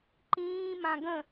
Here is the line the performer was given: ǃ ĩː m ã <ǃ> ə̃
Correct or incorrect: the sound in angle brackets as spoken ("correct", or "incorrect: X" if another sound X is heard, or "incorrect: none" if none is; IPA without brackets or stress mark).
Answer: incorrect: ɡ